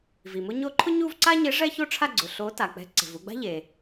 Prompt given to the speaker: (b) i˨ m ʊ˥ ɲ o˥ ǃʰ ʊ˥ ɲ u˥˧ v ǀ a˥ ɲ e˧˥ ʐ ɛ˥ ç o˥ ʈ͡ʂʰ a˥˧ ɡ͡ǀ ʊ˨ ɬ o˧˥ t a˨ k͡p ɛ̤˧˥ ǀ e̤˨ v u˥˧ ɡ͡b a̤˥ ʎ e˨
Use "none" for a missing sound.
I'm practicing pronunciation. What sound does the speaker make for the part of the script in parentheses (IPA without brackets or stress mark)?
v